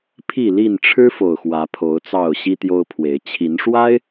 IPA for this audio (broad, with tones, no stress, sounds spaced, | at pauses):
pʰ i˥˨ l i˥˨ n ʈ͡ʂʰ ɻ̩˦ f o˨˩ ʊ̯ x w ä˨˦ pʰ o˨˦ ʊ̯ t͡s ɑ˥˨ ʊ̯ ɕ i˦ t̪ j o˦ ʊ̯ pʰ w e˨˦ ɪ̯ t͡ɕʰ i˨˦ n ʂ w a˦ ɪ̯